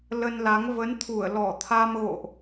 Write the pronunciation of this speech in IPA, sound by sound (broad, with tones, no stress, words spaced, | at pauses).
lə˧nla˨˦ŋ və˨˦n t̪ʰu˧˩ə̯lɔ˧˩ t̪ʰa˧mɣo̰˧˨ʔ